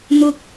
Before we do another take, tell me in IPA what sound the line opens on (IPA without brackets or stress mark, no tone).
n̪